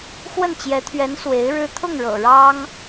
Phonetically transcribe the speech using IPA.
x w ə˥˩ n t͡ɕ j ɛ˧˥ t̪ʰ ɥ ɛ˧˥ n s w e˧˥ ɪ̯ ɻ ɻ̩˥ t̪ʰ ʊ˥˩ ŋ ɻ ɤ̰˨˩ ɻ ɑ˥ ŋ

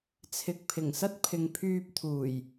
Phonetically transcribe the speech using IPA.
t͡sʰ ɪ˨ k̚ pʰ ɪ˨˩ ŋ s ɐ˥ t̚ pʰ ɪ˨ ŋ pʰ yː˧ p̚ t̪ʰ uː˨˩ j

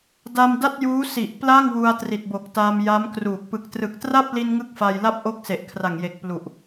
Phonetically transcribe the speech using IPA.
d a˧ m d a˥˩ t̚ j uː˦˥ s i˨˩ ʔ p l a˥˩ ŋ w u˧ a̯ t r i˨˩ t̚ b o˨˩ k̚ t aː˧ m j a˦˥ m k r uː˨˩ k̚ p ɯ˨˩ k̚ t r ɯ˨˩ k̚ t r a˥˩ p̚ l i˧ n ŋ ɯ˥˩ k̚ f a˧ j l a˥˩ p̚ ʔ o˦˥ k̚ s e˨˩ ʔ kʰ r a˨˩ ŋ j e˨˩ k̚ p l u˨˩ ʔ

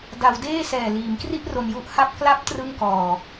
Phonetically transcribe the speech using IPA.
d a˩˦ w d eː˥˩ s ɛː˨˩ l iː˩˦ m k r i˥˩ ʔ r o˧ n j u˥˩ ʔ h a˥˩ p̚ k l a˦˥ p̚ t r ɯ˥˩ ŋ k ɔː˧

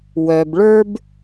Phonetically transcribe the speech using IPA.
w œ˩ b ɭ ə˞˦ b

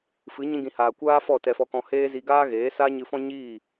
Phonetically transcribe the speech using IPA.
f ɨ˨˦ ɲ ĩ˧ ɡ ĩ˨ h aː˨ kʷ aː˦ f ɔ˦˨ t ɛ˧ f ɔ˧ k ɔ̃˧ h eː˦ z i˧ ɡ aː˦ ɣ eː˨˦ s aː˦ ɲ ɨ˧ f ɔ̃˦ ɲ iː˦˨

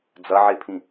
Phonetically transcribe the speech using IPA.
d͡z ɐ ʕ e pʰ ĩ

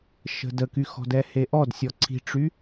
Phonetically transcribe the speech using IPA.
ʃ ə̤ d ə k y x ɔ̤ d ɛ h e ʔ ɔ d sʲ ɔ ǀʰ i̤ ʈ͡ʂ y

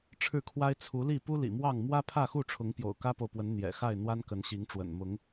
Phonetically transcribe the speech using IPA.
ʈ͡ʂʰ ɻ̩˥˨ kʰ w a˦ ɪ̯ t͡sʰ u˨˦ l i˥˨ p u˦ l ḭ˨˩ m w ɑ˥˨ ŋ m w ä˦ pʰ ä˥˨ x u˥˨ ʈ͡ʂʰ ʊ˨˦ ŋ p j o̰˨˩ ʊ̯ k ä˦ p o˨ ʊ̯ p w ə˨˦ n n̪ j ɛ̰˨˩ x a˥˨ ɪ̯ n̪ w a˦ n k ə˨˦ n ɕ i˨˦ ŋ ʈ͡ʂ w ə̰˨˩ n m ʊ˨˦ ŋ

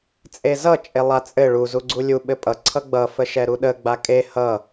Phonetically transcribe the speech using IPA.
t͡sʼ e z ʌ t͡ʃʼ e lˠ a t͡sʼ ɘ ɭ u z u ɡ͡ǀ u lʲ u ɓ ɘ pʼ ʌ ǀʰ ʌ ɡ͡b ʌ f ə ʃ ɛ ɾ u ɗ ə ɡ͡b a kʼ e h ʌ

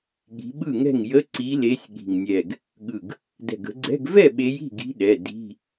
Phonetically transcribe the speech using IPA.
ɠ i̤˨˦ ɓ ɯ˥˩ ŋ ɛ̤˥˩ ŋ j ə˧˥˧ ǀ i˨˦ l e˨˦ sʲ ɠ i̤˧˩ ŋ nʲ ɛ˧˩ ɡ | ɠ ɯ˧˩ ɡ | d ɛ̤˧˩ ɡ ə̤˨˦ ɡ͡ǀ ɛ̤˧˥˧ ɡ v ɛ˥˩ ɓ e˨˦ j i̤˥˩ ɡ i̤˨˦ ɗ ɛ˩˧˩ d i̤˧˥˧

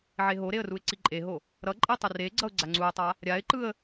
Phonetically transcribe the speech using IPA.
ʕ e ɦ o ɾ e ə̯ r u ɪ̯ ǀ i ǃʼ e ɦ o | ɾ ʌ ǃʼ i tˤ ɯ r e ɡ͡ǀ ʌ ʊ̯ ɡ͡ǀ a ŋ͡ǀ u ɪ̯ tˤ a | ɾʲ a ɪ̯ ǃ ɯ ə̯

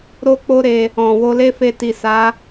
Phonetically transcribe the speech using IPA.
ɾ o˦ k͡p o˦ ɾ e˧ | ɔ̃˨ w o˧ l e˦ f e˧ t i˨ s a˨˦

